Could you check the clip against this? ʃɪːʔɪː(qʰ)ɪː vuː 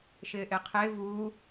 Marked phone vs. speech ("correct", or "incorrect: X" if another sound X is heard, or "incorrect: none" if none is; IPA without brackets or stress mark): correct